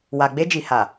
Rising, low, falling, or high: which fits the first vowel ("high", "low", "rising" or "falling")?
low